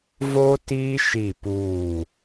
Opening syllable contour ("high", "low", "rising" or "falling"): high